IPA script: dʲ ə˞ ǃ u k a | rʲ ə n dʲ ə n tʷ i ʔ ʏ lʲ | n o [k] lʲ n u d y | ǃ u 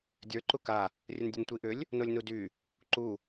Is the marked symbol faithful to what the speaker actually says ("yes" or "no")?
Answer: no